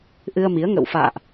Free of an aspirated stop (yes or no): yes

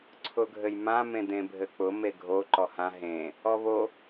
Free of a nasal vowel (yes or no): no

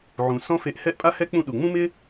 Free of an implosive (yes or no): no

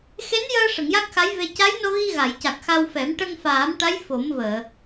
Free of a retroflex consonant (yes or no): no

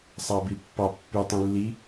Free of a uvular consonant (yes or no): yes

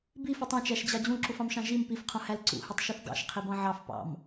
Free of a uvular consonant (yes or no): no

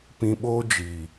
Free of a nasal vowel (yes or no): no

